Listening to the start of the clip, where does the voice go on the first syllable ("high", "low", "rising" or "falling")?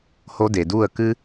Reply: high